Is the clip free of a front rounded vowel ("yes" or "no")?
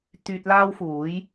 no